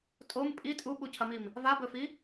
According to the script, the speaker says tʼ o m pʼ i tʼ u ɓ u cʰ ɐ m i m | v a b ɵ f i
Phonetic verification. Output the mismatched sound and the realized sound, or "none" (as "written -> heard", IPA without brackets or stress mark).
none